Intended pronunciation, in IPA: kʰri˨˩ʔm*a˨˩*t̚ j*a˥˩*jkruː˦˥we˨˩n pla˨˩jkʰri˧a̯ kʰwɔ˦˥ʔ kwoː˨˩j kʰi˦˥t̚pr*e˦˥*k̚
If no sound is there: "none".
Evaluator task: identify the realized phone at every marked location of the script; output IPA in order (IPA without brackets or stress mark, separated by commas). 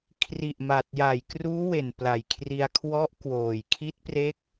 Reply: a˨˩, a˨˩, e˦˥